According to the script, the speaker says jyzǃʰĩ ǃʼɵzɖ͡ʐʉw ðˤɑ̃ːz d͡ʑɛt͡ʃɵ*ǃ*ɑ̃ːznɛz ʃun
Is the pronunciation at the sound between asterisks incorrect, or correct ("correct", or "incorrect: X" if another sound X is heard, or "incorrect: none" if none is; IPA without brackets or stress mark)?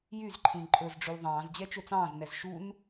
incorrect: t͡s